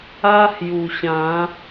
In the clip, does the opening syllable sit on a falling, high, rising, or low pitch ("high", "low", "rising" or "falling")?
high